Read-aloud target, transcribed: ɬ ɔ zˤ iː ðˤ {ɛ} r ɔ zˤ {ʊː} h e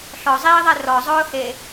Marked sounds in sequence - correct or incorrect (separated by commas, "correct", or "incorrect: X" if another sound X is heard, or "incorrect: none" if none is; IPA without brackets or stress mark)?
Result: correct, correct